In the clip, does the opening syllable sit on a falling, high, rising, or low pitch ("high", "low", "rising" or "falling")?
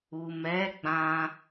low